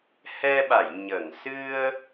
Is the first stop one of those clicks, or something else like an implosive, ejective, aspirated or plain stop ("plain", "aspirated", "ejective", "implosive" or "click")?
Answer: implosive